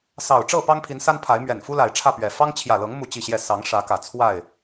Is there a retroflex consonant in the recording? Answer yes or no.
yes